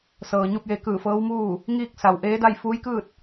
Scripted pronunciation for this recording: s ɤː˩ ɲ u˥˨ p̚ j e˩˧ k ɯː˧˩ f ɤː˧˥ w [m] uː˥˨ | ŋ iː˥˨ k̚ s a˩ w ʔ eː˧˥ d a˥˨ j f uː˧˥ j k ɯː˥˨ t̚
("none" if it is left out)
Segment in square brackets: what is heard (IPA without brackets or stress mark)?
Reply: m